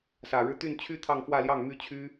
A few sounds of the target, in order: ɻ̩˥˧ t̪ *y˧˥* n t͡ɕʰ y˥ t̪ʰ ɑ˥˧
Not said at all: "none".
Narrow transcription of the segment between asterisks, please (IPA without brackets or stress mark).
y˥˩